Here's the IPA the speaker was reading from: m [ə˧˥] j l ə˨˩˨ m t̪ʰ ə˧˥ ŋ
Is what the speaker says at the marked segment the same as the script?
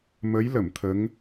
yes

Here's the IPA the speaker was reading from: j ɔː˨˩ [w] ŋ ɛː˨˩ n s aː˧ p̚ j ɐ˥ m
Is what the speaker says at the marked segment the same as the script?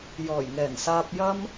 no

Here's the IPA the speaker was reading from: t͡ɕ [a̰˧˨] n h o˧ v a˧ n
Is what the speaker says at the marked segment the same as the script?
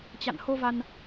yes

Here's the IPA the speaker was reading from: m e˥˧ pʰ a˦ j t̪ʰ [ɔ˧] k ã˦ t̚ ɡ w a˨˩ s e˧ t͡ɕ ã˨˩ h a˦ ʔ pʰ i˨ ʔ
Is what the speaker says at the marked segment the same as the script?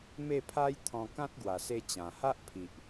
no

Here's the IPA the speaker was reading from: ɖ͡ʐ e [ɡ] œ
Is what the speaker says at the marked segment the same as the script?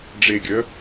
no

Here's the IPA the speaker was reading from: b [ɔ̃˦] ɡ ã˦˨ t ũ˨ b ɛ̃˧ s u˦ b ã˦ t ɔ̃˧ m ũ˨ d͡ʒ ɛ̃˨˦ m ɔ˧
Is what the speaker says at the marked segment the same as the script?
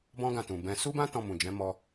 yes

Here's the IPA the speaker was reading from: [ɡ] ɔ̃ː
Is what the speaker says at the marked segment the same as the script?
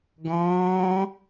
yes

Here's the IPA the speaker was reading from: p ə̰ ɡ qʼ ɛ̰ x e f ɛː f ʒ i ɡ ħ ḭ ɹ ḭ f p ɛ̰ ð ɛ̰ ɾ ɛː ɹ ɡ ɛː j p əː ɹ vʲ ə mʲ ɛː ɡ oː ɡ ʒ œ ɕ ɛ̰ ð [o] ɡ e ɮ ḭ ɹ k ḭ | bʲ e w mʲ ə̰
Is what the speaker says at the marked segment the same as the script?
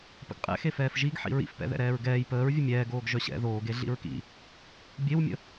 no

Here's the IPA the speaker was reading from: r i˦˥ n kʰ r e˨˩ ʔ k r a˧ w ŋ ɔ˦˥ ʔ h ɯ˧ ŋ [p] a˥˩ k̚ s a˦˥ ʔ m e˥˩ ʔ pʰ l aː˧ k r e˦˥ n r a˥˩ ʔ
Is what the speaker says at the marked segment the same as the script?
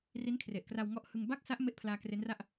no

